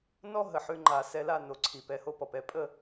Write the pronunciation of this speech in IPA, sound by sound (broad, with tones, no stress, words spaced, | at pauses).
nɔ˥ ɦə˩ħʉ˧ŋ͡ǃa˩ sɛ˧ la˥˩no˩ ǀʰi˩ pɛ˩˥ho˧pɔ˩pɛ˩˥ pʼə˥˩